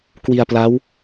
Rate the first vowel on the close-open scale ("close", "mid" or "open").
close